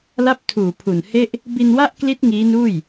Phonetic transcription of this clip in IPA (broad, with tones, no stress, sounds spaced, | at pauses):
l a˥˩ p̚ tʰ uː˨˩ pʰ u˨˩ n h e˥˩ ʔ | b i˧ n w a˥˩ ʔ k l i˦˥ t̚ ŋ iː˦˥ n uː˥˩ j